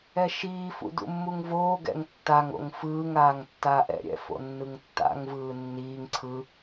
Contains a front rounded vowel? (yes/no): no